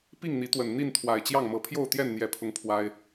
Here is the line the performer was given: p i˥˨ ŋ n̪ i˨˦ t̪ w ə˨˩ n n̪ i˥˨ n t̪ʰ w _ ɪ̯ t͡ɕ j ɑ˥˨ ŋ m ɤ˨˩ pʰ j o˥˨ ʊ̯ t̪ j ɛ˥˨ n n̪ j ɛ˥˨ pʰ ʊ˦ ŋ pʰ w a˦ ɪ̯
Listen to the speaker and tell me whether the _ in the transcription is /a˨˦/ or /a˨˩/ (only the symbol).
a˨˩